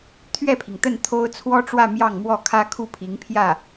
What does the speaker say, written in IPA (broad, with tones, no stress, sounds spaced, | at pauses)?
t̪ʰ ɥ ɛ˥˩ pʰ i˩ ŋ t̪ ə˥˩ n t̪ʰ o˥ ʊ̯ t͡sʰ w ɔ˥ ʈ͡ʂ w ä˥˧ m j ɑ˥˧ ŋ m w ɔ˥˩ kʰ ä˥ kʰ u˥˩ pʰ i˧˥ ŋ pʰ j ä˥˩